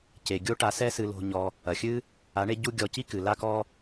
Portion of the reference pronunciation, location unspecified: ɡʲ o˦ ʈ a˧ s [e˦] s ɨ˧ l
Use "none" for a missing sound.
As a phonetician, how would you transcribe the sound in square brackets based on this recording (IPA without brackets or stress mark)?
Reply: ɛ˦